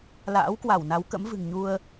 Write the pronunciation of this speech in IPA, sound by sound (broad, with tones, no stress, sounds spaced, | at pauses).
l a̰ː˧˥ w k w a˧˩ w n a˨˦ w k ə̰˧˥ m v ɨ̤˨˩ ŋ ɲ u˧ ə̯